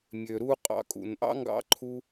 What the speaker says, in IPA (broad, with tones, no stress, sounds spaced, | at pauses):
mʲ ø˨ ɾ u˧ qʼ ɑ̰˨˦ kʼ ṵ˨ n ʔ ɑ̰˦ ŋ ɡ ɑ̰˦ ǃʰ u˦